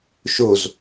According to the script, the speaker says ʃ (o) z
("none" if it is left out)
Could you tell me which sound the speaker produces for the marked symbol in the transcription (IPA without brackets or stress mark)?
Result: o